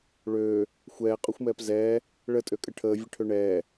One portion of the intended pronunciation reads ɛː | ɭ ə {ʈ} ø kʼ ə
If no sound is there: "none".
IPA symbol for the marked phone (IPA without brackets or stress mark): tʼ